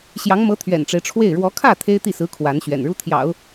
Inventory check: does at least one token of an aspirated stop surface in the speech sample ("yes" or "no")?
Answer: yes